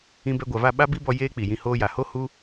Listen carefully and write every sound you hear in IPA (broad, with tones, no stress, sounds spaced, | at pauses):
ĩ˧ b ɛ˧ ɡʷ a˨ v a˦˨ ɓ a˦ b i˦ b ɔ˧ j eː˦ k͡p i˨ j ĩ˧ h oː˧ j a˨ h o˦ h u˦